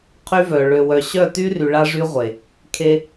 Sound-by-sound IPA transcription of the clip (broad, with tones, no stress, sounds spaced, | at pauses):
qʰ y˦ v œ˨ ɭ ø˨ w œ˨ ɕ œ˦˨ t y˦ r y˨ ɭ a˦ ʐ y˦ ʁʷ e˨ | kʰ e˦